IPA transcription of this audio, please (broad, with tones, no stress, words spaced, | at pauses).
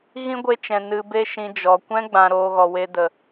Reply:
ɣĩ˦ɡʷe˧t͡ʃɛ̃˨ nɨ˨be˧ʃĩ˨ d͡ʒɔ˨ kʷɛ̃˦ɡ͡bã˨ ɾoː˧ɣɔ˨we˧ də˨